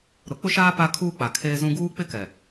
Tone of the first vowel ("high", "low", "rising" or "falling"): rising